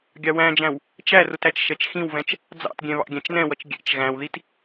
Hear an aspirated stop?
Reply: no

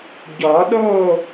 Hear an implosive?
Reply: yes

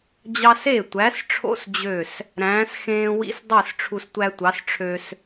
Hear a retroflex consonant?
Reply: yes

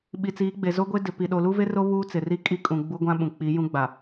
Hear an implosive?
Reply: yes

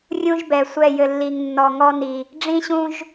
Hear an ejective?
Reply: no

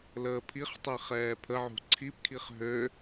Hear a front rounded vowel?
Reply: yes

